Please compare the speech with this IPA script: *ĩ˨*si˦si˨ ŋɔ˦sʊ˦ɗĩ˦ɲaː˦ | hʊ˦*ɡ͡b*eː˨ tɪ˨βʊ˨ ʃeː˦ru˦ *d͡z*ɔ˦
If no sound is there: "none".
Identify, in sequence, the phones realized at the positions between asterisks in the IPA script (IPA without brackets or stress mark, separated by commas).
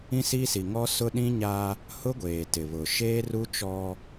ĩ˦, ɡʷ, t͡ʃ